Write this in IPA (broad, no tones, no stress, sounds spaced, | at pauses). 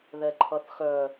ð ɛ ǃʰ ʌ θ x œ